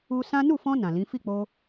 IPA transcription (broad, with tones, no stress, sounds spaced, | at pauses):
u˧ s ã˦ n u˦˨ f ɔ̃˧ n ã˨ l ĩ˨˦ f i˦˨ k͡p o˧